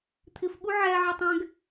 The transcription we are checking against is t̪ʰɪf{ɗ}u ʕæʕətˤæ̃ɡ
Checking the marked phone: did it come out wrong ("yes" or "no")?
yes